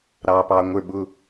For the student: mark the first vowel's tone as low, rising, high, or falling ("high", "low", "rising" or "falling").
low